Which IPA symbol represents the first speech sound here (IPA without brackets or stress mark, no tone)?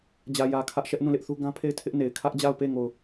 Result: d͡ʑ